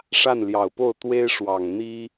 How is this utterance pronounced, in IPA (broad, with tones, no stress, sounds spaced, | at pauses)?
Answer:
ʂ a˥˩ n l j ɑ˨˩ ʊ̯ p o˥˩ ʊ̯ t̪ w e˥ ɪ̯ ʂ w ɑ˨˩ ŋ n̪ i˥